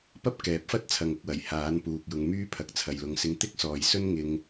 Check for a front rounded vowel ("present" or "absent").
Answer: present